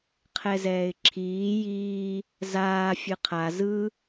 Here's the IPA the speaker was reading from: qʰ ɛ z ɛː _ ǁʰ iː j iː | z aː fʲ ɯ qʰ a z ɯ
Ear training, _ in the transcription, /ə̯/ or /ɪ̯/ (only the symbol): ɪ̯